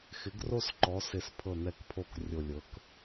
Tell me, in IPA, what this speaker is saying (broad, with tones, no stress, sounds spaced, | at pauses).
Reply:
x ɪ˩˥ ɡ r o˥˨ s ǃ ɔ˩˥ s ɪ˧˩ s pʰ ɤ˧˩ n̪ ɛ˧˩ k pʰ o˧˩ k rʲ o˧˩ lʲ ɤ˩˥ k